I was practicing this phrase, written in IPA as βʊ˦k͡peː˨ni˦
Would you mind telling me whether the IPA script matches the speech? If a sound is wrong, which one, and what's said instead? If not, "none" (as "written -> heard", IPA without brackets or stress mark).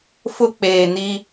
β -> f